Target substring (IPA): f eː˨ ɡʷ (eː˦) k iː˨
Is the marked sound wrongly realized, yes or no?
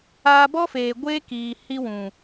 no